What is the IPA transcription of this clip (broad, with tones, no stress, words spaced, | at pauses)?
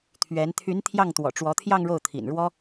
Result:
t̪ʰɥɛ˧˥n t̪ʰy˧˥n t̪ʰjɑ˥˩ŋt̪wɔ̰˨˩ʈ͡ʂwɔ˧˥t̪ʰjɑ˥˧ŋ ɻo˥˩ʊ̯t̪ʰḭ˨˩nɻwɔ˥